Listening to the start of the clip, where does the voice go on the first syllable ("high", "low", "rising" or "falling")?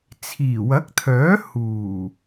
low